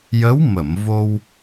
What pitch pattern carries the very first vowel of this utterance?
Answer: rising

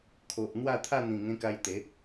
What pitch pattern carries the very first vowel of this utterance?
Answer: low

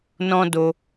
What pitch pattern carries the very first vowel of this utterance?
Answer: high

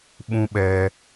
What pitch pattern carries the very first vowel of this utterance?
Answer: high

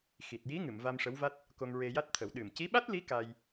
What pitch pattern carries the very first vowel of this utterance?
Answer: low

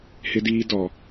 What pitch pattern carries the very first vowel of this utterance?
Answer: high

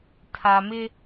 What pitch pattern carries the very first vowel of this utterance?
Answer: low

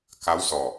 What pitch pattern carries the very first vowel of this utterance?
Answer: rising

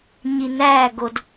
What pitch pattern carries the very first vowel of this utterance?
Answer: low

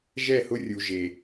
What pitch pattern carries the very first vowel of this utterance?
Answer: falling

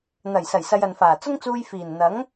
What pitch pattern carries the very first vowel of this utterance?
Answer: low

